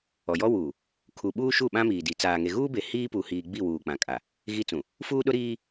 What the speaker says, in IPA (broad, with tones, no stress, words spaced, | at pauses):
ɔ˨jɔ˦ wuː˨ | kʰu˨ɓuː˦ ʃu˦˨ɓã˦miː˨di˨ t͡saː˨ŋe˨ɣuː˦be˨ hiː˦pu˨hiː˨ ɡ͡bi˦˨wuː˨ k͡pã˨kʼa˨ | ɣi˦t͡sũ˨ | fuː˦ɗʊ˦ɾiː˦